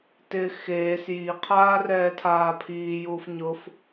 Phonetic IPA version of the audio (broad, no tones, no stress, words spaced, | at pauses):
tɪ xeːs jiqʰaː rɛːtʰaːpʰiːjuːf ɲʊf